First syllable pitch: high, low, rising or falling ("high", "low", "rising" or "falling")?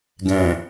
low